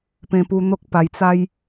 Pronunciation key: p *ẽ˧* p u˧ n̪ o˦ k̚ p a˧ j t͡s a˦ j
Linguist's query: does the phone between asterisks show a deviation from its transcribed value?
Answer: no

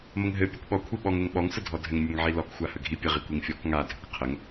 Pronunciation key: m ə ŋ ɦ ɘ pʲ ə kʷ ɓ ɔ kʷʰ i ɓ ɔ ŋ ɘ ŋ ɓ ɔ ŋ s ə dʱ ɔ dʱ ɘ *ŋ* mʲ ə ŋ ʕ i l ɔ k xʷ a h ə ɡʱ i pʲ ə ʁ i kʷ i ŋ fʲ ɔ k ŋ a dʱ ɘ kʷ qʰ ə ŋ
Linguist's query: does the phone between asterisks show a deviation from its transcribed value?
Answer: no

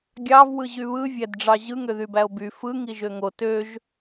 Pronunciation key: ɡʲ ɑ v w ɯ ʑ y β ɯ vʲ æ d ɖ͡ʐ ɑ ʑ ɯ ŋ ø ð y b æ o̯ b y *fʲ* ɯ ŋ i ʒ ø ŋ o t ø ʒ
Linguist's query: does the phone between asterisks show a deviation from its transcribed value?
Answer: yes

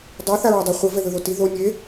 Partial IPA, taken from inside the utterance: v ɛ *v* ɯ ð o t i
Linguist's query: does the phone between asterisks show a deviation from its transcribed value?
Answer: yes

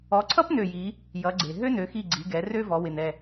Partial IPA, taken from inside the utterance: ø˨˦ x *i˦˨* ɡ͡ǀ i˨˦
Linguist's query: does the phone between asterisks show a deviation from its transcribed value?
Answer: no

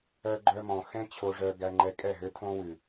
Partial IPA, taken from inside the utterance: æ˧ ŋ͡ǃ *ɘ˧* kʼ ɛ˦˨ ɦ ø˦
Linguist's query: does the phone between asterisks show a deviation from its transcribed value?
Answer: yes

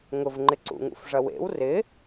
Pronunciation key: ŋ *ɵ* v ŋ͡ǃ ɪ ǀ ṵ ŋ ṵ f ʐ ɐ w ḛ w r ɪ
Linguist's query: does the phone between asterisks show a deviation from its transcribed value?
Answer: yes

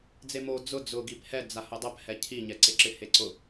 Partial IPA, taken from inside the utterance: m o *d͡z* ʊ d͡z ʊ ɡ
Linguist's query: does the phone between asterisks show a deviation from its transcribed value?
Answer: no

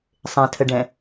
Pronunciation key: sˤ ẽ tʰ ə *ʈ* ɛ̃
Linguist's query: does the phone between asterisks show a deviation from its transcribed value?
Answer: yes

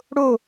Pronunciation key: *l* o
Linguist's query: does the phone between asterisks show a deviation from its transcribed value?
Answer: yes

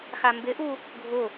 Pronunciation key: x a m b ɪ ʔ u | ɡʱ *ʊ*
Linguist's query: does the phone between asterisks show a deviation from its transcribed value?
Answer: no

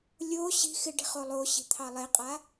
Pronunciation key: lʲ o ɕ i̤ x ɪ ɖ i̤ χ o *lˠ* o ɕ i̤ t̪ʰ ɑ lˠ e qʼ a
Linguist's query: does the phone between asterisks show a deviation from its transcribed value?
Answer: no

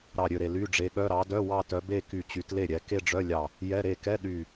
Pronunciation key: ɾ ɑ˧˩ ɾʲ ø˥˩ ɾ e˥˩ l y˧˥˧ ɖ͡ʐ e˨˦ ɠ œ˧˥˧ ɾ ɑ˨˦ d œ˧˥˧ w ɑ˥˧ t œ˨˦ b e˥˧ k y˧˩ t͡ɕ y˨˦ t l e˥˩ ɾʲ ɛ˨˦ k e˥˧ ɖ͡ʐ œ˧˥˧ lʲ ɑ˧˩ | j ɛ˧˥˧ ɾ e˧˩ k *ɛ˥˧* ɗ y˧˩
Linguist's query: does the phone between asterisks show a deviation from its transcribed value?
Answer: yes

